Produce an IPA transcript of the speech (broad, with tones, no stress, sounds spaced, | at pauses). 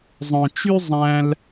zˤ œ̃˧ t͡ʃ y˥ zˤ æ̃˥ l